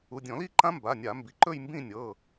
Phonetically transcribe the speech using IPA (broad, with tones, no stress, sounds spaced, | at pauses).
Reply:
u˩˧˩ dʲ ɔ̃˧˩˧ l i˥˧ ǃ ã˦˥ m b a˩˧˩ nʲ a˧˩˧ m b i˩ ǃ ɵ˥˧ j m b ĩ˥˧ nʲ ɤ˩˧˩